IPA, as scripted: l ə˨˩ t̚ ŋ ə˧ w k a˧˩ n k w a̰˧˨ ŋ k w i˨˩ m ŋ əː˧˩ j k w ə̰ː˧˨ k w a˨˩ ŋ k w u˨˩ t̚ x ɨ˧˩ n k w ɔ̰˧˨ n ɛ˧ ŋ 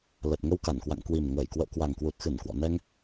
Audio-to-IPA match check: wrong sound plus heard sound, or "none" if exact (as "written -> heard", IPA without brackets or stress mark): none